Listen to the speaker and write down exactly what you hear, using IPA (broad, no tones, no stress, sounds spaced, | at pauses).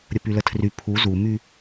ɾʲ ə p y l ə tʰ r y pʰ u z u m y